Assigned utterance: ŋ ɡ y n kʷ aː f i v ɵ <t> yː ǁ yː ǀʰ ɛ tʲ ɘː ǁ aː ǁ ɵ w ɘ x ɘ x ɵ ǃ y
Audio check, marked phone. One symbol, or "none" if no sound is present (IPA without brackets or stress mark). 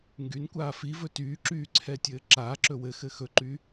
t